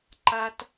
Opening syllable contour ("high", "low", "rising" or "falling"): high